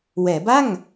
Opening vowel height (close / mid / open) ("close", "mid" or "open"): mid